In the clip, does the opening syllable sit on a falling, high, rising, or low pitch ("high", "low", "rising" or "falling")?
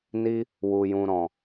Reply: high